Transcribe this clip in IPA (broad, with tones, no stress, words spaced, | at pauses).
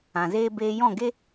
ã˨zeː˦ beː˧jɔ̃˦˨ɡe˦